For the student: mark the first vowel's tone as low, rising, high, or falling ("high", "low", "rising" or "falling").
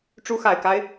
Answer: rising